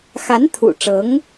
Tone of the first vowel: rising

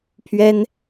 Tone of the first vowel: high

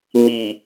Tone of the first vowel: low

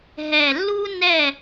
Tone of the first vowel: low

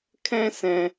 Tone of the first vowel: high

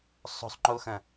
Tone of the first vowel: high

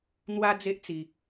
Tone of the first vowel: high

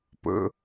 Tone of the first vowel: low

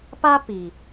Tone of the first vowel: high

